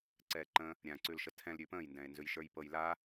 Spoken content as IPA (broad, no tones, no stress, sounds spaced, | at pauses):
ǀ ɛː ǃ ə̃ | ɾʲ ã ǀ ʉ l ʃ ə tʰ ɛ̃ l ɾʲ ʉ p ə̃ː j n d ɛ̃ e̯ n z ʉ j ʃ ə˞ j p ɤ j l a